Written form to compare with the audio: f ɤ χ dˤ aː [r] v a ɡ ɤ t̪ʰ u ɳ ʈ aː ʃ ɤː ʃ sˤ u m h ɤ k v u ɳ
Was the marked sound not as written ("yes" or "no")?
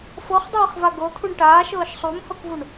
yes